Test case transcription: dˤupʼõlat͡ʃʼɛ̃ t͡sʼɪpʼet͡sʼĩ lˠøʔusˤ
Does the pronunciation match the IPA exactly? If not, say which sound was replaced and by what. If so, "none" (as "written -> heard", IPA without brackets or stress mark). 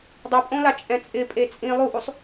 ø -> u